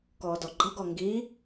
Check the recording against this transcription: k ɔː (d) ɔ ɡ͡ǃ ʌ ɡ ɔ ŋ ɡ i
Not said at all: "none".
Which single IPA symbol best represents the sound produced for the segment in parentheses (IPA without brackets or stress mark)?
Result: d